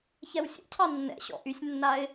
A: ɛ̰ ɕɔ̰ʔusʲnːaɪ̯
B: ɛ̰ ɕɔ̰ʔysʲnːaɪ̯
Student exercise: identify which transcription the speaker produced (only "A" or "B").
B